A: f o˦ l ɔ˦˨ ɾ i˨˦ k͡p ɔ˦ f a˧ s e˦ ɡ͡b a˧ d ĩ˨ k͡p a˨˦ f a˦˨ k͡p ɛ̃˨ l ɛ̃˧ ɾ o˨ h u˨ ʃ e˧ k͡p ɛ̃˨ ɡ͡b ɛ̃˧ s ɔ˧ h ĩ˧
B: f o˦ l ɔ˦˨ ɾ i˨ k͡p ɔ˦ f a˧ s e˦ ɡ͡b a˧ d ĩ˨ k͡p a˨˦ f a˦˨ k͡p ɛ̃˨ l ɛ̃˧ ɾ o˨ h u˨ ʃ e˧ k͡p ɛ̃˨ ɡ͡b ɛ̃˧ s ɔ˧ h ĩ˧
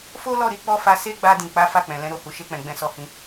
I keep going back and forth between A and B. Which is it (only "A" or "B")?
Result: A